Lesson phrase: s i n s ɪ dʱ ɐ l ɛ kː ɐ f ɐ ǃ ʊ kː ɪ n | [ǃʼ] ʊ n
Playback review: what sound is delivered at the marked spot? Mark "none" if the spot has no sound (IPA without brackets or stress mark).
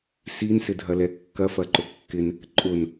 ǃʼ